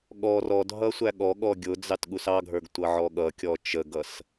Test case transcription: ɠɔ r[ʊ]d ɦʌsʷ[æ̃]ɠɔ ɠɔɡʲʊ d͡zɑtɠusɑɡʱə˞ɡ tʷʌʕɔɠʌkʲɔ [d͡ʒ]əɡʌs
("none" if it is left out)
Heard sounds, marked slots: ɔ, æ, t͡ʃ

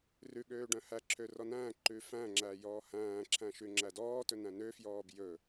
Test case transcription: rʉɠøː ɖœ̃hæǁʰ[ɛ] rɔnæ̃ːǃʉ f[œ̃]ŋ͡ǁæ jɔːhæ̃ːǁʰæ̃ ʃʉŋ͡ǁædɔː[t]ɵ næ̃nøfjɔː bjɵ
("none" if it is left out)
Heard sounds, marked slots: ø, æ̃, t

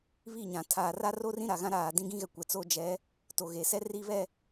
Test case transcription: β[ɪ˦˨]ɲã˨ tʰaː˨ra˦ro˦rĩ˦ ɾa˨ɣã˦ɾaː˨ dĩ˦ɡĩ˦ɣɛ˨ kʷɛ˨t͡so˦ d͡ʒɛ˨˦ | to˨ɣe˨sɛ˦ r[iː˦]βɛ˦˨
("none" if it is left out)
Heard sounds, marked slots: i˦˨, i˦

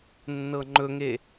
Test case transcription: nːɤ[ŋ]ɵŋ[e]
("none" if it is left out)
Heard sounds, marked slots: ŋ͡ǃ, e

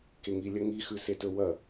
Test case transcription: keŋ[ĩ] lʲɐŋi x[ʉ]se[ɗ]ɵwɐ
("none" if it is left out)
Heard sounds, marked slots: i, ʉ, t

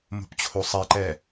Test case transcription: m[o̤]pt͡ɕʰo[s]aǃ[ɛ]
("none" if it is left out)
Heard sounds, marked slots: o̤, sˤ, ɛ

